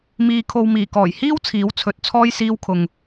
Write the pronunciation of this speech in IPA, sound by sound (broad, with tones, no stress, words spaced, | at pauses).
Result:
miː˨kʰo˨w miː˨˩kɔː˨˩j hiː˥w t͡sʰiː˨˥wt͡sʰɵ˨˥t̚t͡sʰɔː˥j siː˧wkʰʊ˨ŋ